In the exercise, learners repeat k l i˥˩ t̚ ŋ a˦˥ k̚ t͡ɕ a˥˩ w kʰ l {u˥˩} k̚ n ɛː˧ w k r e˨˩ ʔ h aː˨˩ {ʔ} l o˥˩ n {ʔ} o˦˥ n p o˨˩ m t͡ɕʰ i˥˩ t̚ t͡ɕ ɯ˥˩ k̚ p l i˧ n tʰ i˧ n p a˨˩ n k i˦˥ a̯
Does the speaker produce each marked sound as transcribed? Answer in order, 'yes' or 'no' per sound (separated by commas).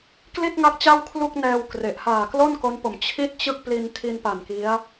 yes, no, no